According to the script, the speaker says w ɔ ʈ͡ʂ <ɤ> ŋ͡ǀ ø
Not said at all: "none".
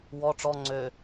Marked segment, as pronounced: ɔ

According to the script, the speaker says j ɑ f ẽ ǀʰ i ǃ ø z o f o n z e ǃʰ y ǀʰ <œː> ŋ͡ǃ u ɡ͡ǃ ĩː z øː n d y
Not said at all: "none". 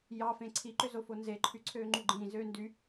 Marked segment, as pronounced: øː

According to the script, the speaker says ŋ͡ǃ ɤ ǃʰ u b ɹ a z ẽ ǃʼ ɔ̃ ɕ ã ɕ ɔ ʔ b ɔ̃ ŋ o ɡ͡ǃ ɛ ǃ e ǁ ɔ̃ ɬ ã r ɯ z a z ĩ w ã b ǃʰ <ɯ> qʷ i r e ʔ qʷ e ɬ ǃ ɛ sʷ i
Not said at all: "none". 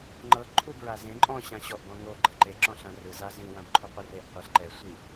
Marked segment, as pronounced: u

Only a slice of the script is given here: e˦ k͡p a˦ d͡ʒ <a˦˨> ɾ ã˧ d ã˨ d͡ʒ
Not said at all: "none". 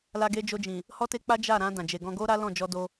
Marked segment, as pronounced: a˦˨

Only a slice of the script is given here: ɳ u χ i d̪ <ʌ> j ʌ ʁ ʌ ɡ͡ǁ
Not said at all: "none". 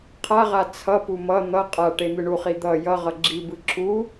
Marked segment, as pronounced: ʌ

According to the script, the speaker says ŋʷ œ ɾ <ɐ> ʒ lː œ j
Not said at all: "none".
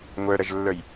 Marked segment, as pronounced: ɐ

